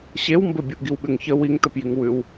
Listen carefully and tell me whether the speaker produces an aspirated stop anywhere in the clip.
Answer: no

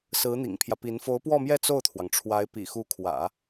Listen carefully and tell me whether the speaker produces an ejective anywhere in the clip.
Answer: no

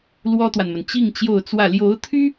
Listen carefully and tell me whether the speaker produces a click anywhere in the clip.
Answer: no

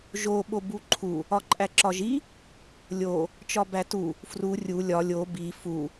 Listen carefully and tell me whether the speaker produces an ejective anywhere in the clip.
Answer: yes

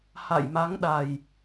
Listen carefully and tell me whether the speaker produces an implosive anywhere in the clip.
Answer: yes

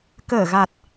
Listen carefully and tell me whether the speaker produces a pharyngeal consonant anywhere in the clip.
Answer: no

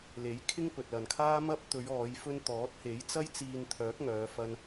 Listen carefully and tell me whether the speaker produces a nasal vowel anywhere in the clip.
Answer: no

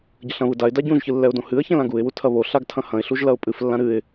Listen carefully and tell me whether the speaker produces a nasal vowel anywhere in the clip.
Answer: yes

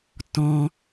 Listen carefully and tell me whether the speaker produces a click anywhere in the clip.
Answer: no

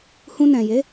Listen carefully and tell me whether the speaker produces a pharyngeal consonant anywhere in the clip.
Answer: no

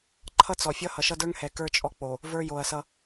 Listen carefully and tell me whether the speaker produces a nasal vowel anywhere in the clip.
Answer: no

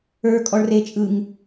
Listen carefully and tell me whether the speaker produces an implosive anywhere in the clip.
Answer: no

